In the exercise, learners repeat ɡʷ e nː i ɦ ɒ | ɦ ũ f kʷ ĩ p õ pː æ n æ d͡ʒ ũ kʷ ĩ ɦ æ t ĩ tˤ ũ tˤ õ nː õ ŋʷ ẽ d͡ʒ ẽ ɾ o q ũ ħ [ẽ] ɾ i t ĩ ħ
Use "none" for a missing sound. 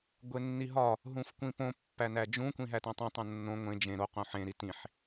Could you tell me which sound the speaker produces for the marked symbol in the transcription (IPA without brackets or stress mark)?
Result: ẽ